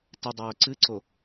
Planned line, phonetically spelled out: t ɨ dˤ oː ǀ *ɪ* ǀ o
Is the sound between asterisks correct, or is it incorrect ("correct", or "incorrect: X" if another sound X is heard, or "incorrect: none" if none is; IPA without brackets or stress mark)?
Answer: incorrect: ɨ